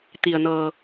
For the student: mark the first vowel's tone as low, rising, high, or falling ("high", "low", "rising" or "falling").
low